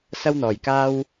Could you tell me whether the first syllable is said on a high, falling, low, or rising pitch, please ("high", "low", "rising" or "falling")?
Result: high